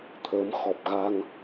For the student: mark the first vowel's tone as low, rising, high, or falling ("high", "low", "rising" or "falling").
rising